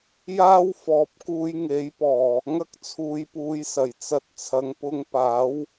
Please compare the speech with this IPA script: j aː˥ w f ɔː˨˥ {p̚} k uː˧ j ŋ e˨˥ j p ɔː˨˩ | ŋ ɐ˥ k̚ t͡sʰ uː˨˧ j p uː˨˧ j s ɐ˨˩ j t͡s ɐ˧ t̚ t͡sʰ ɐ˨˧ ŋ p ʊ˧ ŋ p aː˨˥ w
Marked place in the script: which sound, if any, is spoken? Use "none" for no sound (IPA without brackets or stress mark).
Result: p̚